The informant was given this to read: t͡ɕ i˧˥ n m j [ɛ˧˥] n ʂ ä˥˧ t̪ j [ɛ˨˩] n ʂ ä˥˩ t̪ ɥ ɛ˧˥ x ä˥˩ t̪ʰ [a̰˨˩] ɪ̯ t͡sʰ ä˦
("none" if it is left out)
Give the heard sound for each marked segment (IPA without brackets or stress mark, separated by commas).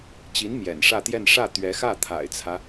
ɛ̰˨˩, ɛ˥˧, a̰˨˩